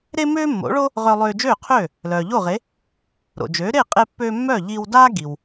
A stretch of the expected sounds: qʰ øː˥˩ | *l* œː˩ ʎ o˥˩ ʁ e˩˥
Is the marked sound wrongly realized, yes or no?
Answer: no